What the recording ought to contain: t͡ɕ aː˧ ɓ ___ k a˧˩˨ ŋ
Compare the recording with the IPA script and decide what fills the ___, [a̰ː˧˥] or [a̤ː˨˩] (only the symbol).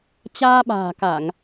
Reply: a̤ː˨˩